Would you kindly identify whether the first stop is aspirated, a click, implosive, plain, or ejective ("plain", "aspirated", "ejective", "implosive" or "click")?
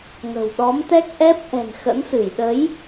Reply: implosive